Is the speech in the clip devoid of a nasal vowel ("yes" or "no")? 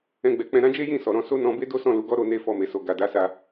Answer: no